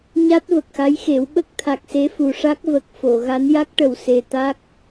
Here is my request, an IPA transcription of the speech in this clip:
ɲa˦˥t̚və˨˩k̚xa˧˥jxe˨˩˦w ɓə˦˥k̚t̪ʰa˨˩k̚ se˧˥fu˨˩ʂa˦˥k̚ və˨˩k̚fo˨˩˨ ɣa˧˥n ja˦˥k̚ʈə˨˩w se˨˩ t̪a˦˥k̚

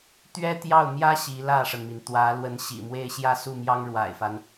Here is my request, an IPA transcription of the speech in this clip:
t̪ɥɛ˥t̪jɑ˥˩ʊ̯mjä˥ ɕi˧˥lä˥˩ʂə˩nmi˩n t̪wä˧˥ lwə˧˥nɕḭ˨˩mwe˥˧ɪ̯ ɕjä˥˧su˥˩mjɑ˥ŋ ɻwa̰˨˩ɪ̯fa˦n

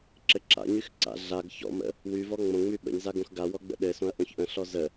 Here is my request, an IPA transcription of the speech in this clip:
ǁɘǁa̰ɲyx ǀa̰ ɮaɡ çɔ̰mə̰ | wyvɔ ŋ͡mõŋ͡my ɓə̰ɲza ɡõxɡawɔ ɡ͡bə̰ɗɘsõɐ̯ ʔõçʔə̃ɬɔ zə

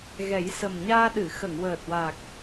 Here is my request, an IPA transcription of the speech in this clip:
ɣɛ˨˩˦jsə˨˩mɲaː˧ɗɨ˨˩˨ xə˨˩˨ŋwəː˨˩t̚wa˨˩k̚

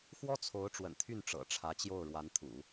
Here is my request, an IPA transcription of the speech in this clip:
xwɔ˥t͡sʰo˧˥ʊ̯ ʈ͡ʂwə̰˨˩nt̪ʰy˥˩n ʈ͡ʂɤ̰˨˩ʈ͡ʂʰä˧˥t͡ɕjo˥˩ʊ̯ ɻwa˧˥nt̪ʰṵ˨˩˦

